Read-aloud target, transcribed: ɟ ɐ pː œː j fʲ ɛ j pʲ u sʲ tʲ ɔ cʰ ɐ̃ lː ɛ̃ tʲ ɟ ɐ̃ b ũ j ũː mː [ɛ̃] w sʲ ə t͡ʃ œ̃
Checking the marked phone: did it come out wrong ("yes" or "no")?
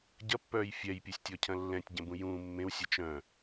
yes